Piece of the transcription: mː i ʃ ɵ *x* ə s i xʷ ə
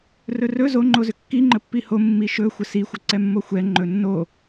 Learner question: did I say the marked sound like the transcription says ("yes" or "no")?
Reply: no